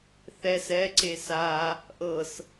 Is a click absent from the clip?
no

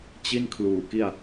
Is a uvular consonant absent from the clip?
yes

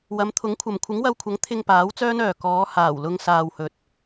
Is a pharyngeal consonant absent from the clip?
yes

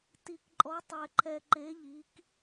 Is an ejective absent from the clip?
no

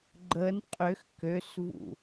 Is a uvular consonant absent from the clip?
no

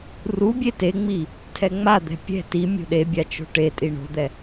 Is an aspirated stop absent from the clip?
no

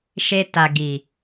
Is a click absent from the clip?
yes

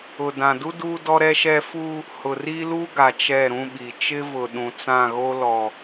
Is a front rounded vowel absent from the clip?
yes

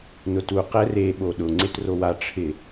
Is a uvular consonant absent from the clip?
no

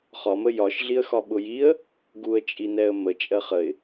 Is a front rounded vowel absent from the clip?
yes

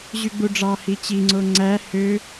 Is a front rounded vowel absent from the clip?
no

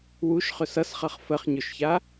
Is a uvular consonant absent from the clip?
no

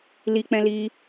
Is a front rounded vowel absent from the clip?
yes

